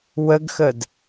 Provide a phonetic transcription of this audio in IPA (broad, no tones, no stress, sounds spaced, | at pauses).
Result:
w ə ɡ x ə d